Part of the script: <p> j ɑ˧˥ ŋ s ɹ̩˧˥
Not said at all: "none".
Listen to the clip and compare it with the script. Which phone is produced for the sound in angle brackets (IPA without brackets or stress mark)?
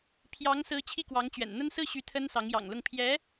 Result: pʰ